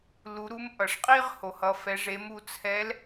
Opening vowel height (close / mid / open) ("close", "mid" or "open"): close